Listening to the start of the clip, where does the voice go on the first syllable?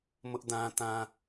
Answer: high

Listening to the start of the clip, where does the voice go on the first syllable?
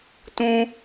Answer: high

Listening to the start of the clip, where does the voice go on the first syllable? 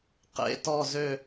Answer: falling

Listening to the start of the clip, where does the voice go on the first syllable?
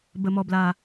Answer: low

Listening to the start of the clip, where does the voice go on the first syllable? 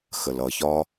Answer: low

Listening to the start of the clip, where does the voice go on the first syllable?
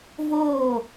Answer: falling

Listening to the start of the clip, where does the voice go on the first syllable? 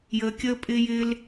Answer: low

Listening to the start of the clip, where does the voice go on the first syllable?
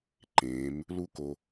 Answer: rising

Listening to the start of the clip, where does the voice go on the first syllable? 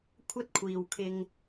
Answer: high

